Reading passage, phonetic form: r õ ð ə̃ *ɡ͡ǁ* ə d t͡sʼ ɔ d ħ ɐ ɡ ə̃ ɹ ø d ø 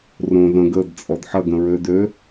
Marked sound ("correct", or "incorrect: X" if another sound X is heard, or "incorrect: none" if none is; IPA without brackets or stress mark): incorrect: ɡ